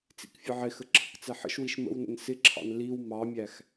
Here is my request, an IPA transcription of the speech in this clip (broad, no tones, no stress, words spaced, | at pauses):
t͡sḭkfʲəʕɪxə ǁʰə̰kt͡sɛħə̰ʃwiʃ mə̰wnə̰n sɪǁʰɑ̰n liw mɑmʲæx